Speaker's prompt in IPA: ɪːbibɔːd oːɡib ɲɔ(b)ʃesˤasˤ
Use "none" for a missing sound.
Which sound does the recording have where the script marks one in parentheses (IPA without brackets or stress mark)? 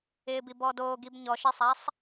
none